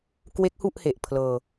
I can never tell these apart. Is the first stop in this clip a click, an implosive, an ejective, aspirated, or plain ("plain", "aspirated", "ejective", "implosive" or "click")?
plain